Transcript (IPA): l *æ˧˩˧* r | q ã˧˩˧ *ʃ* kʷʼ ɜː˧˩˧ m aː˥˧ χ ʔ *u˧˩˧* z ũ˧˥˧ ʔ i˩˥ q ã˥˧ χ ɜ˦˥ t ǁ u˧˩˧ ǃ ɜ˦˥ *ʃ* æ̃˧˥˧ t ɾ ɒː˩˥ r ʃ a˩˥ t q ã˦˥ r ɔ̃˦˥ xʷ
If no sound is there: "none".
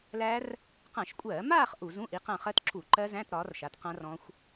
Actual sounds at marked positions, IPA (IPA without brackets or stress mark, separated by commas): æ˦˥, ʃ, u˧˩˧, z